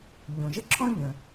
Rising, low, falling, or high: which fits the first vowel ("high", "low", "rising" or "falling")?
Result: low